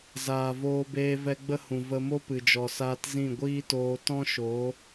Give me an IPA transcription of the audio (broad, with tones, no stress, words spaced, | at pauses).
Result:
zaː˨ voː˧beː˧vɛ˧ ɡ͡bə˦hũ˨ və˧mo˦ pɨ˨d͡ʒɔ˨saː˧t zĩ˦˨ɡʷiː˦toː˧ tɔ̃˦ʃo˨˦